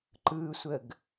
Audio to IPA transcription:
ǃɯsʷəɡ

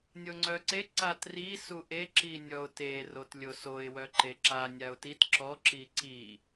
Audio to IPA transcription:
nʲoŋ͡ǀœǀe ǀatri suʔe ǁinʲɔʊ̯te rotlʲosoɪ̯ wœǃeǁa nʲaʊ̯tit ǁɔ ǁiǀi

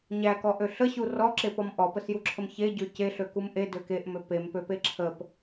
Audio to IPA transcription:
ɲækɔʔø ɬəɕu rɔǁepɔm ʔɔpəsjuǁʰəm çeɟø ceɬøkum ʔedø keʔmø pempøpe ǁʰəp

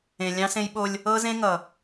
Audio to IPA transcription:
ẽ˨lʲɑ̃˦ sẽ˦jɓo˦lʲ | ɤ˦ zẽ˦ŋʌ˨

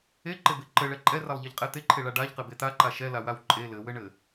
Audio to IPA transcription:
eǃebe ǃɘɭɛ ǃʼɛralˠʎeʎqʼɛ t̪eǃʰeɭa ɖaʎqɘbe t̪aǃa ʃɛlawaw ǃʼe lɘwɘɳɘ

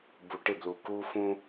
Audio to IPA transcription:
bu˨ʈɪ˦˨blu˨ ku˦fũ˦

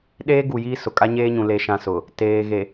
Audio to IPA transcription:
ɗeː˦ɡu˨ jiː˦sʊ˨ kʼa˦ɲeː˦ɲũ˨ le˦ʃã˦sʊ˨ | teː˨ ɣe˨

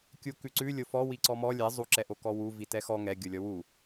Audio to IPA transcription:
kʲukʉǀʉ lʲofɔ wiǀɔmɔ lʲɛ zˤu ǁɛʔokɔwu vitɛxɔ ŋɛ ɡʲolʲɔwu

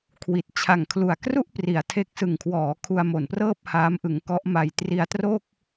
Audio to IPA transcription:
kʰwi˨˩t̚ t͡ɕʰa˨˩ŋkʰlu˨˩a̯ kru˥˩ʔpri˩˦a̯ tʰe˦˥k̚ sɯ˨˩ŋkʰwɔː˩˦ kʰu˧a̯mo˨˩nprɤː˥˩p̚ haː˦˥mʔɯ˧ŋkɔ˦˥ʔma˧j tri˧a̯tro˥˩k̚

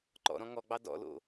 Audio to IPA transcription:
ǃɔ̰ɾɔ̃ ŋɔɡ͡bɑ dɔ̰lo̰

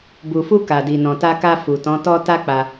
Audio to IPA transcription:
bu˨fu˧ ka˨di˨nɔ̃˨ta˧ ka˧ fu˨tɔ̃˨˦tɔ˦ ta˦k͡pa˧

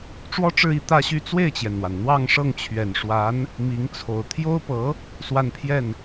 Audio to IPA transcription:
ʈ͡ʂwɔ˥ʈ͡ʂɻ̩˥˧i˥˧ t̪ä˥˧ɕy˥˧ t͡swe˥˩ɪ̯t͡ɕjɛ˩nn̪wa˩n n̪wɑ˥˧ŋ ʂɤ˥˩ŋt͡ɕʰɥɛ˨˩nʂwa˧˥n | mi˧˥ŋt͡sʰo˨˩ʊ̯ t̪ʰjo˥ʊ̯pɤ˧˥ | swa˥˧npʰjɛ˥˩n

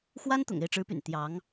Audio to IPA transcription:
xwa˥nt̪ʊ̰˨˩ŋ e˥˩ɪ̯ʈ͡ʂɻ̩˧˥py̰˨˩n t̪jɑ˧˥ŋ

